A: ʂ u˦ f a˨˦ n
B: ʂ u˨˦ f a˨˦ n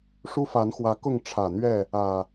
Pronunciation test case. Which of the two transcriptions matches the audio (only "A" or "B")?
A